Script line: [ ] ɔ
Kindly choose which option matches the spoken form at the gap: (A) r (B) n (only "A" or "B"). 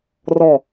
A